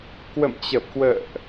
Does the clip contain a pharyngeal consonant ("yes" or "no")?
no